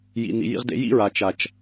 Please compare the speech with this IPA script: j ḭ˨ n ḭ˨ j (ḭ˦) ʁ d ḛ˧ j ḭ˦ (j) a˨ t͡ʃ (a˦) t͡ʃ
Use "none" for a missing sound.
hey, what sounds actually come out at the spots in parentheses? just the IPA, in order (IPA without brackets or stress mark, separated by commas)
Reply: ḭ˧, ɹ, a˨